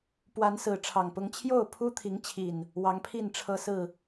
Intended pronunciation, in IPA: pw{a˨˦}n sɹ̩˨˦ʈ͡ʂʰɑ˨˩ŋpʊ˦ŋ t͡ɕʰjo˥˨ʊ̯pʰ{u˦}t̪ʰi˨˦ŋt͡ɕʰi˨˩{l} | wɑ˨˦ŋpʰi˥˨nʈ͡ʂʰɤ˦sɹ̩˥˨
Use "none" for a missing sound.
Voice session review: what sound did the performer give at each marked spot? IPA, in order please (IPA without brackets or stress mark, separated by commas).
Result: a˨˦, u˦, n